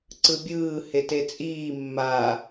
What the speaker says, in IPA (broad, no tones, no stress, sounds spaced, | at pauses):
ǀ ɯ bʲ ɯː h e t e t͡sʼ iː mː aː